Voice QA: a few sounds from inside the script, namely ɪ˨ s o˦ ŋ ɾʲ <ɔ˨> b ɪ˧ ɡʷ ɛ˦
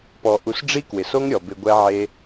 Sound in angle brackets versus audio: correct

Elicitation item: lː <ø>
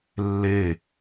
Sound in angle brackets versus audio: incorrect: e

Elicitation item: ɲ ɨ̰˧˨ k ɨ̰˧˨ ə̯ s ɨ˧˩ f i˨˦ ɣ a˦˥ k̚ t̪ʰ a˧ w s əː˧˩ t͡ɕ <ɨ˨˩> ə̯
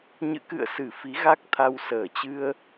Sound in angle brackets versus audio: incorrect: ɨ˧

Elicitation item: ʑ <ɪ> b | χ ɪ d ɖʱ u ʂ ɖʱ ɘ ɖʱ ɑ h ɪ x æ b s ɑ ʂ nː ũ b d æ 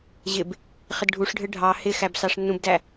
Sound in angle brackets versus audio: correct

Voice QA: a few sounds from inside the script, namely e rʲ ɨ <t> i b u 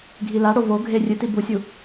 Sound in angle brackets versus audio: correct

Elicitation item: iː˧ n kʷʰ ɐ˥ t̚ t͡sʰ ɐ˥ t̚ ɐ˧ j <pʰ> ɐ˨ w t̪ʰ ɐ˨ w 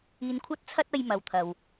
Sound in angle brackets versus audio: incorrect: m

